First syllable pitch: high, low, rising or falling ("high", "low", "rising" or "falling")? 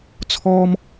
high